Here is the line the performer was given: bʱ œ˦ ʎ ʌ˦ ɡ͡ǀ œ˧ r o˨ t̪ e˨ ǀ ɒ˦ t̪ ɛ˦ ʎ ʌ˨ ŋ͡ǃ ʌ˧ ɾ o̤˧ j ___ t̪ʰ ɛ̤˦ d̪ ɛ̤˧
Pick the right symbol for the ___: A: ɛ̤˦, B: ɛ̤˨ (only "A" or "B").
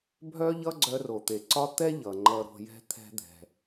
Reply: A